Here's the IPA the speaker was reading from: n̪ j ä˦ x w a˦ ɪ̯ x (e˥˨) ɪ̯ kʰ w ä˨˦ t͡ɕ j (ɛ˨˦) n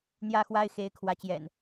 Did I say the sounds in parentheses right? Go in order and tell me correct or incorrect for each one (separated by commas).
incorrect, incorrect